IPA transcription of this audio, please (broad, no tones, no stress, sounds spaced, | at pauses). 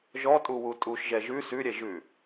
ʒ ɔ tʼ u w u tʼ u ʃ ʒ ɛ ʒ ʉ s ʉ ɾʲ ɛ ʒ ʉ